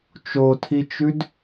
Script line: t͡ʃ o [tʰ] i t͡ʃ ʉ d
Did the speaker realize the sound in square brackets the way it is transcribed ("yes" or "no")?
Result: yes